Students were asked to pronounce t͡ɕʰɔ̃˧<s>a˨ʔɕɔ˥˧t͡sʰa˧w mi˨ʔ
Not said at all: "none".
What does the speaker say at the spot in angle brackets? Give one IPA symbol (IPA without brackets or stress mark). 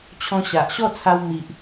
ɕ